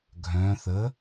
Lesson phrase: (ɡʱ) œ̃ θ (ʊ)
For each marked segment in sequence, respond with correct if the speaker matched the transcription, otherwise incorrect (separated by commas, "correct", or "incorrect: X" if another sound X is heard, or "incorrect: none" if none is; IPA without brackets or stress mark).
correct, incorrect: ə